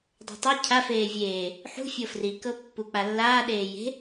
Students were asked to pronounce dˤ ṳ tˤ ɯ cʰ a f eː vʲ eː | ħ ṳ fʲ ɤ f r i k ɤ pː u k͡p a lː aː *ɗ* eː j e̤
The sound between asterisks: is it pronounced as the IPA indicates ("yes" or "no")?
yes